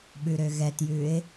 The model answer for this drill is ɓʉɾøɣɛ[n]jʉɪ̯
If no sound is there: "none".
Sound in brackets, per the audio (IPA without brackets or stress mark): t